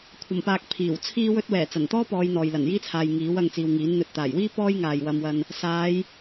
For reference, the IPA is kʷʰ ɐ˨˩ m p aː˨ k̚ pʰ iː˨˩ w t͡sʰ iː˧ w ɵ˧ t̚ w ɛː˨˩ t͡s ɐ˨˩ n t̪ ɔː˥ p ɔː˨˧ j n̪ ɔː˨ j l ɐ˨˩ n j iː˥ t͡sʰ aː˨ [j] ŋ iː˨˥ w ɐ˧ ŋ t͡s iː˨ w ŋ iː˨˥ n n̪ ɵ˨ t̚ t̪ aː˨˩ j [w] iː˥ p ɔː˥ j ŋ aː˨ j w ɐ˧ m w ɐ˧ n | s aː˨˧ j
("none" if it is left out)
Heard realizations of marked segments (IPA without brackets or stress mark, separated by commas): j, w